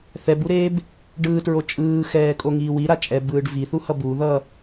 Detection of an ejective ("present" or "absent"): present